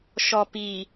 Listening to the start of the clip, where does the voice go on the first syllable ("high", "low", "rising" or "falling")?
low